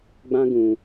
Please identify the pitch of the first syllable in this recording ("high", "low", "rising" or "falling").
high